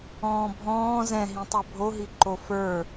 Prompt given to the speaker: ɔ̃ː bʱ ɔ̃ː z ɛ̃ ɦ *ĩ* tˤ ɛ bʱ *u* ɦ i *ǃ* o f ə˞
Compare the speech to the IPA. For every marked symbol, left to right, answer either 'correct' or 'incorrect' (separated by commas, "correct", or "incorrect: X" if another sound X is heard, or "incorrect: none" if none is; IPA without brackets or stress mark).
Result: correct, incorrect: o, correct